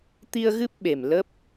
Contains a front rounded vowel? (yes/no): no